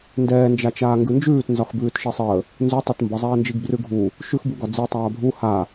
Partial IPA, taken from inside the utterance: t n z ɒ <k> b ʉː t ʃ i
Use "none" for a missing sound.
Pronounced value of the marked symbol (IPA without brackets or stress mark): x